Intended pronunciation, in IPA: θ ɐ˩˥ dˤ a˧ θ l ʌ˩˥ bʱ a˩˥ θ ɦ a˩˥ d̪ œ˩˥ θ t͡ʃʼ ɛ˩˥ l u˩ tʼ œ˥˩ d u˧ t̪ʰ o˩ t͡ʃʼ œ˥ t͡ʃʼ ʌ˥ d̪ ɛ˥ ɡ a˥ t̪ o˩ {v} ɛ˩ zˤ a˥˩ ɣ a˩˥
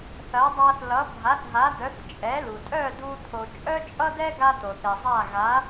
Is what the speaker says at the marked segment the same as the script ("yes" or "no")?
no